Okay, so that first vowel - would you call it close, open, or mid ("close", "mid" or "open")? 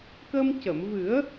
mid